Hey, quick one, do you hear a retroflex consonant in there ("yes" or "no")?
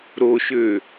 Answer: no